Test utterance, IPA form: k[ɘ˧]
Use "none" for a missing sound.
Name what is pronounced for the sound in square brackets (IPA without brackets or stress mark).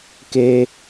e˧